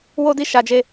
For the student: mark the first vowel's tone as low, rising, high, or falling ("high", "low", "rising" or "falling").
high